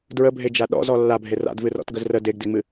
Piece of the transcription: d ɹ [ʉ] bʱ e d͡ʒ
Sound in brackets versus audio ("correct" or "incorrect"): incorrect